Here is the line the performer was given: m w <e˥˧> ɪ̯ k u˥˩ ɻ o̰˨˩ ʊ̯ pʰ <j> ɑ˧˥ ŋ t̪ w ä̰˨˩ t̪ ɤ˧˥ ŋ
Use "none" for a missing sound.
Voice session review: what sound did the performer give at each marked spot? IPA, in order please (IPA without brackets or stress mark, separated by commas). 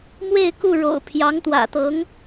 e˥˧, j